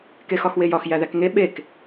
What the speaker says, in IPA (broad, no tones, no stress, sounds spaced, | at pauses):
k e x ɒ x w e j ɒ x j æ ð æ k ŋ e ɓ e k